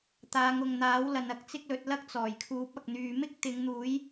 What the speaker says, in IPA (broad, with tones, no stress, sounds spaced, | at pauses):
t̪ aː˨˧ ŋ ʊ˨ ŋ n̪ aː˨˥ w l ɐ˨ n ɐ˨˥ k̚ t͡s ɪ˥ k̚ l ɵ˨˥ t̚ l ɐ˥ k̚ t͡s ɔː˨˩ j kʰ uː˨˥ p̚ ɐ˨ k̚ n̪ yː˨ m ɪ˥ k̚ t̪ ɪ˨˧ ŋ n̪ uː˨˥ j